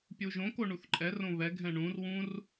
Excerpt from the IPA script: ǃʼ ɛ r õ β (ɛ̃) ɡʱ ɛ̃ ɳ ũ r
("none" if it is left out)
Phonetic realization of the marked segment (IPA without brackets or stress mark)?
ɛ